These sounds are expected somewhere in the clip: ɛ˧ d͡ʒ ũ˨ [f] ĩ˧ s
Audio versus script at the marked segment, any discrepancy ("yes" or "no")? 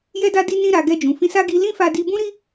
no